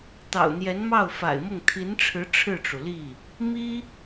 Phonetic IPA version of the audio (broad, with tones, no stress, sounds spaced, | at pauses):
t̪ ɑ̰˨˩ ʊ̯ n̪ j ɛ˧˥ n m ɑ˥˩ ʊ̯ f a̰˨˩ ɪ̯ m ʊ˥˩ ŋ t̪ʰ i˧˥ n ʈ͡ʂʰ ɻ̩˧˥ ʈ͡ʂʰ ɻ̩˥˩ ʈ͡ʂ u˩ l i˥˩ | m i˥